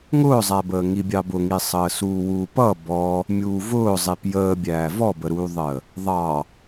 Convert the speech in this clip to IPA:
ŋʊːzˤæbəː ŋibʲɑbʊŋi sˤəːsuːwuːpʌ bɔ | mʲuːvʊː zˤipjəːbʲæː vɔbəɾuːðˤəː | ðˤɑ

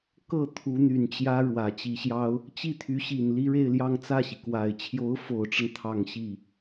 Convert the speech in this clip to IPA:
kɤ˥˩ t̪ʰu˧˥n̪y˨˩nt͡ɕjä˥ ɻwä˨˩t͡ɕi˧˥ɕjɑ˥ʊ̯ | t͡ɕi˥˩t̪ʰy˧˥ɕi˨˩n li˥ɻe˥˧ɪ̯ljɑ˥˧ŋ t͡sä˥˩ɕi˩kwa˨˩ɪ̯ t͡ɕʰjo˧˥ʊ̯fo˨˩ʊ̯ʈ͡ʂə˦n t̪ʰɑ˥˧ŋɕi˥˩

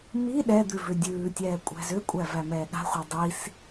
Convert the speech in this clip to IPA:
mi ɗɛd̪ʉ vʏdʲʉːtʲɛː kʷʼæ̤zʏkʷʼæ væmɛːɠa̤χʷa dˤis

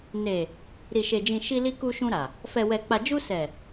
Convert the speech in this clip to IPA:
ne˨ | ɾi˨ʃe˨d͡ʒĩ˨ ʃi˧li˧ ku˧ʃũ˧ɾa˨ | fɛ˨wɛ˨k͡pa˨d͡ʒu˧ sɛ˨

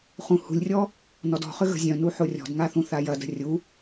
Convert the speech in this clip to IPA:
χũhṳlʲrʲɔ | nɔdɔ̤χʏ ɣə̤zʲœ̃nu ħorʲɔ̤dŋa θũθajɐdə̤ rʲu

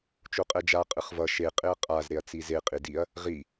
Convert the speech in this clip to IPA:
t͡ʃoqʼɛd͡ʒa qʼɯχvʌ ʃe qʼeɐ̯qʼaz ɾeɐ̯t͡size qʼidiɐ̯ | ʁi

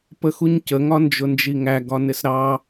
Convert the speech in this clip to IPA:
pəxuɲcə ŋɒnd͡ʒʊnd͡ʒiŋæ ɡɒnɪsɾɑ

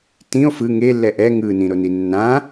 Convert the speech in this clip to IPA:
tĩo̯ fɯ ŋelːɛ ʔɛ ŋɯnĩɾoni nːã

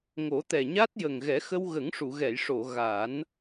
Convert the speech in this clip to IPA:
ŋo˨˩˦t̪ɛ˨˩ɲa˦˥t̚ jə˨˩ŋɣɛ˨˩˦xə˧w ɣə˨˩˦ŋʂu˨˩˨ɣɛ˨˩˨jʂo˨˩˨ ɣa˨˩˦n

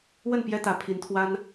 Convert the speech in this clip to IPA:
wə˥˩npjɛ˥t̪ä˧˥ pʰi˧˥nt̪ʰwa˥n

